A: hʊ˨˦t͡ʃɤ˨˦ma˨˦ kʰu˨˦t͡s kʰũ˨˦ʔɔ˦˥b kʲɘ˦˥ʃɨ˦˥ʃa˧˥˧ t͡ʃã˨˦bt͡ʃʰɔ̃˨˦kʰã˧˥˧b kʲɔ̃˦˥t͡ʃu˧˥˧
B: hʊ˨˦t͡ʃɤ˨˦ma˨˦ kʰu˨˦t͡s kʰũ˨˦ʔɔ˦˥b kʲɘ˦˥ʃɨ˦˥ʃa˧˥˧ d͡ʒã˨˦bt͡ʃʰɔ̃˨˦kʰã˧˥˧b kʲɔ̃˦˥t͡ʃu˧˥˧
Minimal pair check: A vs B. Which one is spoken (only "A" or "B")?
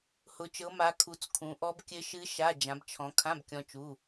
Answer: B